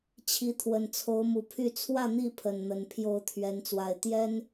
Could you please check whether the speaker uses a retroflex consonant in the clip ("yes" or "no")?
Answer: no